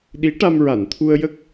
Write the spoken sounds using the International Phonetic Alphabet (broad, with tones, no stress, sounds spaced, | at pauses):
ɗ i˧˥ ʈ a˧ m ɹ a˨˩˨ n t̪ʰ u˧ ə̯ j ə˦˥ k̚